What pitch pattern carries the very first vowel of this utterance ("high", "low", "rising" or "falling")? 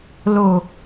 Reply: low